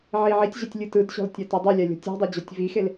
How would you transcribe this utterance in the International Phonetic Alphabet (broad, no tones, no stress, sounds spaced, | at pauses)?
ʕ i ʕ i tʲ ʑ ɛ tʲ lʲ ɯ t ɯ d ɕ ɔ̤ l tʲ a t ɛ dˤ i lʲ a lʲ ɔ̤ tʲ ɔ̤ dˤ e d͡ʑ ɔ tʲ v i x e l